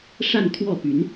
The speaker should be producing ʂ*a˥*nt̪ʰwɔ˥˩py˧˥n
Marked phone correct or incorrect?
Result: incorrect